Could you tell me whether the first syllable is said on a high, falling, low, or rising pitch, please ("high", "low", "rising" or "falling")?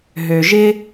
low